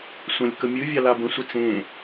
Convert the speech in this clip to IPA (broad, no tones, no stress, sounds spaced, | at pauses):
sʷ ə̃ lʲ k ə mʲ ɨ vʲ a l a b ə̃ sʷ ə t͡s ẽ